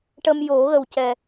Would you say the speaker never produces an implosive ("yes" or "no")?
yes